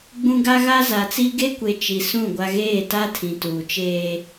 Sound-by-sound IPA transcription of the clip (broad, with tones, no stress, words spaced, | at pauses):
ɡ͡bũ˦ ɡa˦ɣa˦ za˨t͡si˦ ɡe˦kʷe˨ t͡ʃi˨sũ˦˨ ɡʷa˦ ɣeː˦˨ta˦ tʰĩ˨tuː˨t͡ʃeː˦